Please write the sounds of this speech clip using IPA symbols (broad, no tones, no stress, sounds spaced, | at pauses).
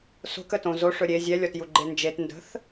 s o̤ k ə t õ z o ʂ ɵ ɾʲ e zʲ ɛ lʲ ɔ t j u ɡ͡ǃ e n d͡ʒ e t n d ə̤ θ